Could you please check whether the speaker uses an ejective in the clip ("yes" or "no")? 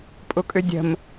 yes